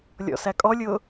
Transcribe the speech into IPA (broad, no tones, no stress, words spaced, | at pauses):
lʲɔ̰sækʼɔlʲʊː